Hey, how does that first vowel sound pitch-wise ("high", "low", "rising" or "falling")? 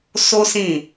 high